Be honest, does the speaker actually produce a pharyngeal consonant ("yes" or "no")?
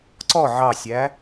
yes